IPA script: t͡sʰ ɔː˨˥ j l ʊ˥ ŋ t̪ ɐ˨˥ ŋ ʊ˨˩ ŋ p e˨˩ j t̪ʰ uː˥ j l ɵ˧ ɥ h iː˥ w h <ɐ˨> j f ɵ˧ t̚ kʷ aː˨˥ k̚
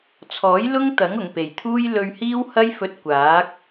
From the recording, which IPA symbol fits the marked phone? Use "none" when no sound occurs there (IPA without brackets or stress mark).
ɐ˥